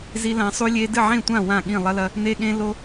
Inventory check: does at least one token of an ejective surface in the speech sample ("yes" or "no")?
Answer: no